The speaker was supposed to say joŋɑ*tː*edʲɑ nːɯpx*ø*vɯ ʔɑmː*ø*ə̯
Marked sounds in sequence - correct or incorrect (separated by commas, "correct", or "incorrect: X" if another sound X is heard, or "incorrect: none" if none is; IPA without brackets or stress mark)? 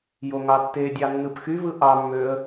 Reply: correct, incorrect: y, correct